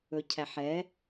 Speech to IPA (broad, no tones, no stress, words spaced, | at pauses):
ɵcʰæħɛ